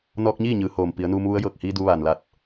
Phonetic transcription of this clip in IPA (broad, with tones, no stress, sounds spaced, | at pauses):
n ɔː˧ k̚ ɲ iː˥˨ ɲ ɯː˩˧ h oː˩ m p i˩˧ ə̯ n uː˧ m ʋ u˧˥ ə̯ j ɤː˧˩ k̚ h iː˧ d u˧ ʋ aː˩ n l a˧˩ t̚